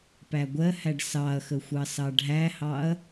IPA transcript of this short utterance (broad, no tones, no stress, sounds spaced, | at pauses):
p æ ɡʷ ɜ h æ ɖ s ɑ ɐ̯ x ə xʷ ɑ s ɑ ɖʱ æ h ɑ ɐ̯